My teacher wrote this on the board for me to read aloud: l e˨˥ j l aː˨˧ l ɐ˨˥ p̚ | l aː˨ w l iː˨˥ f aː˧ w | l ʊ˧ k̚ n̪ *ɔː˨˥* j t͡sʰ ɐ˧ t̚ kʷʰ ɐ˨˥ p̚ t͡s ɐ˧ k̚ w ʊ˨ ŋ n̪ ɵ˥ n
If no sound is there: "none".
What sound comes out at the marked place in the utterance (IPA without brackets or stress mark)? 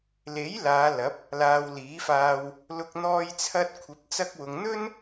ɔː˧